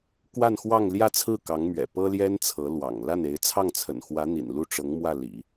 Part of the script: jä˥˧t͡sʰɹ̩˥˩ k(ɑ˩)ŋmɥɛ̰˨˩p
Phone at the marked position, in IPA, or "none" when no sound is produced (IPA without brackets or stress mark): ɑ˧˥